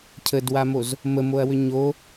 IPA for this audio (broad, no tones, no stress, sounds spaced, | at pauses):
cʰ ə d w a m o z | m ə m o ɐ̯ w ʏ ɲ o